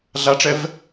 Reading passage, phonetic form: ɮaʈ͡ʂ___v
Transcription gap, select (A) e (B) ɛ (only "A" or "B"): B